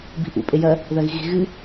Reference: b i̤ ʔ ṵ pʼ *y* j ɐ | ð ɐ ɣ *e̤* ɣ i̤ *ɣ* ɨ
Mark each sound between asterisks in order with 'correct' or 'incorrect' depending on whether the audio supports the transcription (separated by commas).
incorrect, incorrect, correct